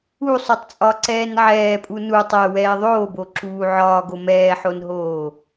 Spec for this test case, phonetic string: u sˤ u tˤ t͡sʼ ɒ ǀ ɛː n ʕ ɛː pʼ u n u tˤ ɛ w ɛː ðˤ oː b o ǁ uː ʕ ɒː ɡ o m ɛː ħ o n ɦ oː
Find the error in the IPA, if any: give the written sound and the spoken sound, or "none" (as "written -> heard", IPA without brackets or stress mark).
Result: none